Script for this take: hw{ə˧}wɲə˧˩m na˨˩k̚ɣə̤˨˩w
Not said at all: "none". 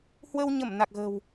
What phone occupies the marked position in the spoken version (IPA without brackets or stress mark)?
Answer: ə˧